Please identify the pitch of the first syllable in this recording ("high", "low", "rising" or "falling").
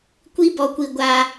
high